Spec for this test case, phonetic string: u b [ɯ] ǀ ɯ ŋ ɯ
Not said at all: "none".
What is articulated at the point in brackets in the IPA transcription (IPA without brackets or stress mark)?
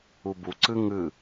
u